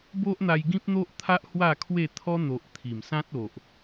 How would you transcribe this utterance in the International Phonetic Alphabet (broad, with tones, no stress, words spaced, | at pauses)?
bo˦ʔn̪a˧j ɡĩ˦p̚n̪o˦ʔt̪ʰa˦ʔ hwa˥˧kʰwe˥˧ t̪ʰɔ˦n̪o˨ʔ t̪ʰi˨˩msã˦t̚ o˨ʔ